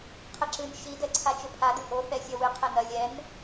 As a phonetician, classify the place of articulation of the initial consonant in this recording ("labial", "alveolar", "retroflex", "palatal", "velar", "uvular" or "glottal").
uvular